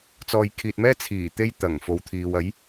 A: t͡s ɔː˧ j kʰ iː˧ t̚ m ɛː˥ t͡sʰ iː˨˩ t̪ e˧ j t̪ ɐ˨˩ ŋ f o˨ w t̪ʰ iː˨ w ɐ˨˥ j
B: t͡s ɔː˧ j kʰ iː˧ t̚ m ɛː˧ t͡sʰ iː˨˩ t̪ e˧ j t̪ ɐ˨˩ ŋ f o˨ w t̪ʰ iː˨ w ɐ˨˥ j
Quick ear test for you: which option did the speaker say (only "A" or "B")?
A